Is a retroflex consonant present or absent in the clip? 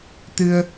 absent